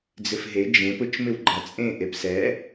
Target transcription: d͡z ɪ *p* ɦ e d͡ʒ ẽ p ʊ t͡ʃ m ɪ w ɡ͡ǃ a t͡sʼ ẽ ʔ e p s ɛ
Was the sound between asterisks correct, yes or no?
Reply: no